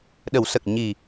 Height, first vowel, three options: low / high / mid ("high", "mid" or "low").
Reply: mid